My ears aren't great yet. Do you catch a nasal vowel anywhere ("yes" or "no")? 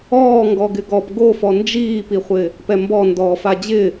no